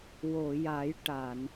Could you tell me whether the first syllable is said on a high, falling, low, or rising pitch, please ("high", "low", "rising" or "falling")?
low